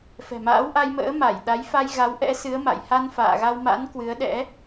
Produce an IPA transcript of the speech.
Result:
f ɛ̤˨˩ m a̰ː˧˥ w ʔ a˧ j m ə̰ː˧˥ m a˧˩ j ɗ a˨˦ j f a˧ j ɣ a˨˦ w ʔ ɛ̰˧˥ s ɨ˨˦ ə̯ m a̰˧˨ j h a˧ n f a̰ː˧˨ ɣ a˧ w m a̰˧˥ n k w ɨ˨˦ ə̯ ɗ ɛ̰˧˥

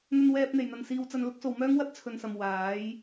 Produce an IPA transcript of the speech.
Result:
n̪ ɵ˧ n w ɛː˧ p̚ n̪ e˨˩ j n̪ ɐ˨ n s iː˧ w t͡s ɐ˧ n l ʊ˨˥ k̚ s o˨ w m œː˥ ŋ w ɐ˥ t̚ t͡sʰ ɵ˨ n s ɐ˨ m w aː˨˥ j

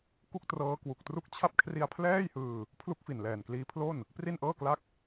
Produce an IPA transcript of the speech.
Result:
k u˥˩ k̚ t r ɤː˦˥ k w u˨˩ k̚ t r u˥˩ k̚ t͡ɕʰ a˦˥ p̚ kʰ r i˧ a̯ pʰ l ɛː˥˩ j h ɯː˧ | pʰ l u˥˩ k̚ f i˨˩ n l ɛː˨˩ n k l iː˦˥ pʰ l o˥˩ n | p r i˥˩ n ʔ ɤː˥˩ k l a˥˩ k̚

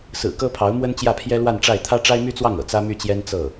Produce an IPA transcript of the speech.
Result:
s ɹ̩˨˩ k ɤ˥ pʰ ɑ˧˥ ʊ̯ m w ə˥ n t͡ɕ j ä˥˩ pʰ j ɛ˥ l w a˥˧ n ʈ͡ʂ a˥˩ ɪ̯ t̪ʰ ä˥ ʈ͡ʂ a˥ ɪ̯ m y˥ t͡s w ɑ˥˩ ŋ ɤ̰˨˩ t͡s ä˥ m y˥˩ t͡ɕ j ɛ˥ n t͡s ɤ˥˩

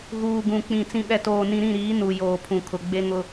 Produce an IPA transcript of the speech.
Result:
ɣ uː˨ ɡ ũ˨ k͡p ĩ˨ t͡s ĩ˨ ɓ ɛ˨ t oː˨ n ĩ˨ ɾ ĩ˦˨ ɾ iː˨˦ n u˨ j oː˨ pʰ ũ˨ kʰ ʊ˨ ɡ͡b e˦ ŋ ʊ˦

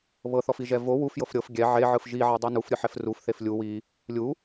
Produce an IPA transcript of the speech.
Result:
β ɤ θ ɔ f i ʒ ɛ v o w u f j ɤ f ɾʲ ɤ f ɡʲ ɛ ʕ e ʕ ɯ f ʒ i ʕ a dˤ ɯ n u f ɾʲ ɯ ħ ɛ f r u f θ e f lʲ u w i | lʲ u

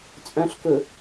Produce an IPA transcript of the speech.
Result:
t͡sʼ œ̃ ɬ k ɵ

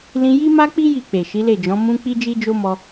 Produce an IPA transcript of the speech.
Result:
l ĩ˧ j i˦ m a˦ k͡p i˦ j i˦˨ k͡p e˨ ʃ i˨˦ l e˦˨ d͡ʒ ɔ̃˨˦ m ũ˦ k͡p i˦ d͡ʒ i˦ d͡ʒ o˦ m ɔ˧

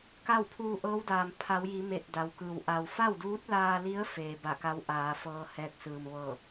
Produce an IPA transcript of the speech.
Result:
k a˥˨ w pʰ uː˧ ʔ ɤː˧˥ w d aː˩ m pʰ a˩˧ w j i˩˧ m e˧˩ t̚ d a˩ w k ɯː˩ w ʔ a˩ w f a˥˨ w d uː˧˥ t̚ l aː˧ l i˧˥ ə̯ f eː˩ b a˧˩ k a˧˥ w ʔ aː˩˧ f ɤː˧ h ɛː˧˥ k̚ s ɯː˩ m ʋ ɤː˧˩

